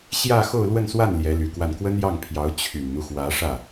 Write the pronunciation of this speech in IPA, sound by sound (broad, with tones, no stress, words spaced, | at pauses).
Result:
ɕjä˥˧ xo˥˧ʊ̯lwə˥˧nswa˥˩n ljɛ˧˥ly˨˩kwa˥˩n kwə˥njɑ˥˩ŋpʰjɑ˧˥ʊ̯ t͡ɕʰy˨˩nn̪u˦xwä˧˥ ʂä˥˩